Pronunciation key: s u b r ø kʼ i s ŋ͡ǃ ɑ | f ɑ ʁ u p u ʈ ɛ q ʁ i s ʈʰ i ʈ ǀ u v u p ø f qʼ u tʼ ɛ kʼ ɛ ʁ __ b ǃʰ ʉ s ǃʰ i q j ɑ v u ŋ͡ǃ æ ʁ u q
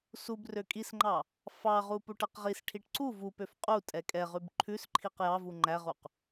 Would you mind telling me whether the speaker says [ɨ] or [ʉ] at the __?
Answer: ʉ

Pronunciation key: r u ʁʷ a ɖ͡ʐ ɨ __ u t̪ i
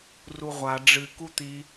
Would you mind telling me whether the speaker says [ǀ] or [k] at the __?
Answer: k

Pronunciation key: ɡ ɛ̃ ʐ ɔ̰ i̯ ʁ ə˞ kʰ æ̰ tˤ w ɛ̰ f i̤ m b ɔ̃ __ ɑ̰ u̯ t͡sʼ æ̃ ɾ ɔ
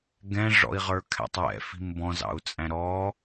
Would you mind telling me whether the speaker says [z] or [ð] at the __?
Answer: z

